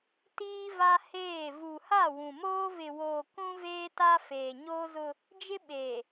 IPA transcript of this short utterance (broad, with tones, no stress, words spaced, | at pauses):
tiː˦va˦heː˦˨ vu˨ha˦˨wũ˨moː˦ vɪ˨woː˨ kũ˦veː˦ta˦ feː˨ɲoː˦zʊ˦ | d͡ʒɪ˦ ɓe˨